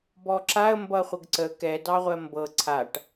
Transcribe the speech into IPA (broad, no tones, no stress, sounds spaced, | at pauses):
b ɔ ǁ a ə̯ m b ʌ χʷ ə ɡ ǀ ə k ɛ d ɑ ʁʷ ɜ m b ɤ ǀʰ a ʈ